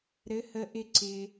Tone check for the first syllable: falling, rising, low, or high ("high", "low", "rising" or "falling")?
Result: rising